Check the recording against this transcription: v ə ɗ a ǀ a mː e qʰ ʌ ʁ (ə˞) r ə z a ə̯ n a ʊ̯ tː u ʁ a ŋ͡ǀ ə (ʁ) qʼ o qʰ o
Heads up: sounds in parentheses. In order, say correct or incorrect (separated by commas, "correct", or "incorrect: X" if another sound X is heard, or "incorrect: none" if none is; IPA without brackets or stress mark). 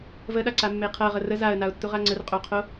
incorrect: ə, incorrect: r